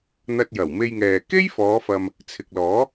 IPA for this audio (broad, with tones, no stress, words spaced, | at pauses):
n̪ɐ˧t̚jɐ˨˩wme˧jŋɛː˨ ke˥jfɔː˨˧fɐ˨m | t͡sʰɪ˨k̚lɔː˨˥